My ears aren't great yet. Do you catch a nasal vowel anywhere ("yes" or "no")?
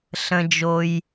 yes